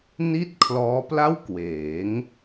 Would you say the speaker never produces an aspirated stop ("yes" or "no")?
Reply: no